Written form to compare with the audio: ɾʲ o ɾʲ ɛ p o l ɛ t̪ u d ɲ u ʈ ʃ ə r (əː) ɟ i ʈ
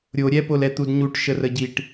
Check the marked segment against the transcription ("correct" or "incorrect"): incorrect